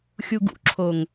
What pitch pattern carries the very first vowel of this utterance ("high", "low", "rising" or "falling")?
low